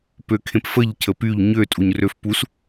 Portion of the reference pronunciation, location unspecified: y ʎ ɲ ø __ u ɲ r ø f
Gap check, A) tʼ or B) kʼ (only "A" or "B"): A